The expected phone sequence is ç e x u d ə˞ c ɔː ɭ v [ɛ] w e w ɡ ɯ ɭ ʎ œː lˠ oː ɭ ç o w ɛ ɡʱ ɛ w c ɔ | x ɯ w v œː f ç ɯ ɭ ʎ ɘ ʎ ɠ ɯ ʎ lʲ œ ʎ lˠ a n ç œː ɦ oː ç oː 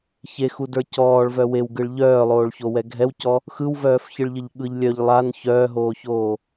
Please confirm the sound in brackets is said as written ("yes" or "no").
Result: no